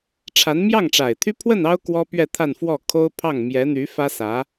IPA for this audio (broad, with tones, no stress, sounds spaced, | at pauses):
ʈ͡ʂʰ a˧˥ n m j ɑ˥˩ ŋ ʈ͡ʂ a˨˩ ɪ̯ t̪ʰ y˥ pʰ w ə˥˩ n ɑ˥ ʊ̯ k w ɔ˥ p ɥ ɛ˥˧ t̪ʰ a˥˧ n f w ɔ˥˩ kʰ o˥ ʊ̯ pʰ ɑ˥˩ ŋ m j ɛ˧˥ n̪ y˧˥ f ä˥ s ä˧˥